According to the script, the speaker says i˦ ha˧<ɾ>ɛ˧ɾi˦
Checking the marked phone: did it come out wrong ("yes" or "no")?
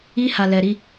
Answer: yes